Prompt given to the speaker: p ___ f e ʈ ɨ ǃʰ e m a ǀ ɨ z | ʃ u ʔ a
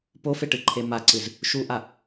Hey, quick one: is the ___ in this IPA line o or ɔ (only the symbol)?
o